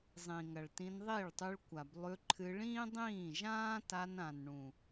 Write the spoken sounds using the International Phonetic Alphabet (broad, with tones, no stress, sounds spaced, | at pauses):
zˤ ĩ˨ ŋ ɐ˨ ɭ t ĩ˧ n ðˤ i˦˨ ɭ tˤ ʉ˧ ɭ kʷ a˨ b lˠ ʉ˧ ǃʰ ɨ˧ ɭ ĩː˦ dˤ ĩː˦˨ ʒ ãː˦ t a˧ n ã˨ n ɳ ũ˨